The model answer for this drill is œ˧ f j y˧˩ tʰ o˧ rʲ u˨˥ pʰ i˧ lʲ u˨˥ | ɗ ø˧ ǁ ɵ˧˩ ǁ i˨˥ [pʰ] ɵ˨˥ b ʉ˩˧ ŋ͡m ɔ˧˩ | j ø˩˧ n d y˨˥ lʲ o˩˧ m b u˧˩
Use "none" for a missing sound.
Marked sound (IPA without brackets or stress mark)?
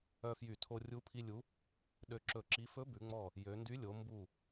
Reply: f